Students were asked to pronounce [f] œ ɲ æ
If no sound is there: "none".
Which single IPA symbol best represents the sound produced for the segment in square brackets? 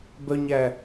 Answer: b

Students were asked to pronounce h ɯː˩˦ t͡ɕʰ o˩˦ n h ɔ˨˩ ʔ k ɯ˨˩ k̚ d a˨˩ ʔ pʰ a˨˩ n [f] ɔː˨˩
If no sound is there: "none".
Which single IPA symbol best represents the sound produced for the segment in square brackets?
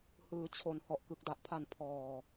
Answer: pʰ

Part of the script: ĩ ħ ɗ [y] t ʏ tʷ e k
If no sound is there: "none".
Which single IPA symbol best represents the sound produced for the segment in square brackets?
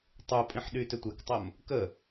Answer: y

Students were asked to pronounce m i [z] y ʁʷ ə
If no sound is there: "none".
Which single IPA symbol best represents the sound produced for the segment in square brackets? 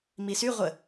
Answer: s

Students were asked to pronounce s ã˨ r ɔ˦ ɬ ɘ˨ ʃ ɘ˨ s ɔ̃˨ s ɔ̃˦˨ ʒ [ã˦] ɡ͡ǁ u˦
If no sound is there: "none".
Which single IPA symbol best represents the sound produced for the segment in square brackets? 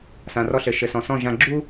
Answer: ã˨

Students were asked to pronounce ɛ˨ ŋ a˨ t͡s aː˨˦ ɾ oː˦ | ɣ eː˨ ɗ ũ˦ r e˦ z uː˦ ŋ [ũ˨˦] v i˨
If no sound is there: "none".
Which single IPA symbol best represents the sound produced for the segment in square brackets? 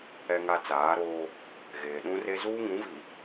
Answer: ũ˨˦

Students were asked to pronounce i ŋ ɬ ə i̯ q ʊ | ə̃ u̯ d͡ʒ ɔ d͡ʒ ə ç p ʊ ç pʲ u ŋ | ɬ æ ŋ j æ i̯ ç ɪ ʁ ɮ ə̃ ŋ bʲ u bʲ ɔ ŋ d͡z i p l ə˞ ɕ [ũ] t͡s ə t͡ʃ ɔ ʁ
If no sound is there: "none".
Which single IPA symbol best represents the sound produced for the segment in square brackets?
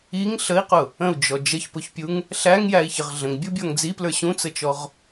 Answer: ũ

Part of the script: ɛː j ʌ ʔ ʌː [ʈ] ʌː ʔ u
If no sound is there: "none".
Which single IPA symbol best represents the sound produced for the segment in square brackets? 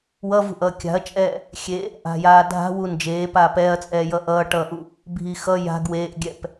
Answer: ʈ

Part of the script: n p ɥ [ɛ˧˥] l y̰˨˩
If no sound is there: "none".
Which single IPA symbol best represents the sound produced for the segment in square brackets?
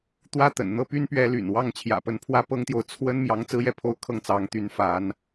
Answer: ɛ˧˥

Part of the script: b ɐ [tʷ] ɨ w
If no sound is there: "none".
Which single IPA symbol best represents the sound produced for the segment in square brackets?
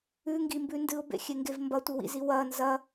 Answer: tʷ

